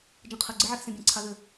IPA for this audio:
d͡ʒ ə̃ qʰ ə ɡ͡ǀ ɯ ʕ ɛ x s ẽ bʲ ẽ ǀʰ a ð ʏ

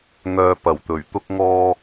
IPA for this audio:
ŋ œː˧ p ɐ˨˩ w t̪ ɵ˨˩ ɥ t̪ ʊ˥ k̚ ŋ ɔː˥

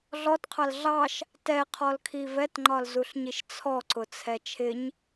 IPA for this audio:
ɮ ɔ t qʰ ɑ l ɮ ɑ ʃ | t ɛ qʰ ɔ l kʰ i v ɛ t ŋ͡ǃ ɒ l z u ɬ ɲ i ʃ t͡sʰ ɔ ǀ ʊ t͡sʰ ɛ t͡ʃʰ ɪ ɲ

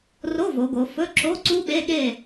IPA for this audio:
r o˧˥˧ v o˩˧ ɡ o˩˧ f ɵ˧˥˧ ǁ o˧˥˧ ǀ u˦˥ ɓ e˧˥˧ ɠ e˥˨

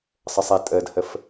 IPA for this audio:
sˤ ə sˤ e tʼ ə d h ə f

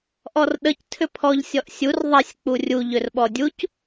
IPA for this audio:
ʔ ɔ r ɗ ə c tʰ ʏ pʰ ɔ ʎ sʲ ɔ ʔ sʲ u r ðˤ ɛ sʲ k͡p u rʲ u ʎ ʏ r ɓ ɔ dʲ u c

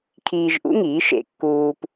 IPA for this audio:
kʰ iː˧ ʒ ʔ ṵ˥ ŋ iː˩˥ ʃ ḛ˧ kː uː˧ p

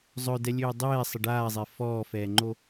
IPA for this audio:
zˤ œ d ɛ lʲ øː dˤ ɛː sˤ ə ɖ aː zˤ e f ɔː f ɛː ŋ͡ǃ o

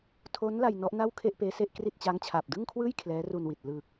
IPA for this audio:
tʰ o˦˥ n l a˧ j n ɔ˦˥ ʔ n a˥˩ w kʰ e˥˩ ʔ p eː˦˥ s e˥˩ ʔ k r i˥˩ t̚ t͡ɕ aː˦˥ ŋ t͡ɕʰ aː˨˩ p̚ d ɯ˥˩ ŋ kʰ w ɯː˥˩ j kʰ l ɛː˦˥ r u˧ n w i˨˩ t̚ l ɯː˨˩ k̚

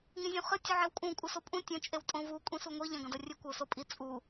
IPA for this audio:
ŋ ĩ zʲ ũ χ ɨ tʲ u ʕ e w kʼ ũ kʷʼ ɨ s o pʼ ũ tʲ ɐ̃ t͡ʃʼ e w tʼ õ v u kʷʼ ĩ s u ŋʷ i ʎ ɐ̃ ɡ ɐ̃ d ɐ rʲ ɨ kʷ ɐ ʊ̯ s o pʼ i t͡sʼ u

